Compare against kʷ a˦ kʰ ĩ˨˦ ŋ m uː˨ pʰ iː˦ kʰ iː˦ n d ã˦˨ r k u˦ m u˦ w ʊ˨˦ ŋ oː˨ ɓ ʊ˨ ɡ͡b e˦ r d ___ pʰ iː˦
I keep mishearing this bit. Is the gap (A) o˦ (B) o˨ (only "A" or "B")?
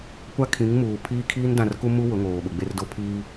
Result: A